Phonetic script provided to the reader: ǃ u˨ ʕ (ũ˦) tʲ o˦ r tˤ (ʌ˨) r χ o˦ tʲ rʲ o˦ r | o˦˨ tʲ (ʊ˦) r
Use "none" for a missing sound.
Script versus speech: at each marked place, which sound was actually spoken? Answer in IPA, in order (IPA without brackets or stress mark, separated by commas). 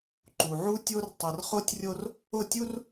u˦, ʌ˨, u˦